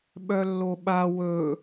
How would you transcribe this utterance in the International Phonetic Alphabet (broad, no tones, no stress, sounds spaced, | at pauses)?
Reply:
ɓ œ lː o ɓ a w ɵ